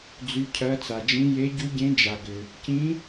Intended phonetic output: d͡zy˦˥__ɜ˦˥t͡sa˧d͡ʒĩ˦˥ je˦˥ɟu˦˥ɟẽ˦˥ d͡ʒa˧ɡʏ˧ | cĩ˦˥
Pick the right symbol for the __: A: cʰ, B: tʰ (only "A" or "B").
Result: A